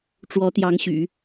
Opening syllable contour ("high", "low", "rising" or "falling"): rising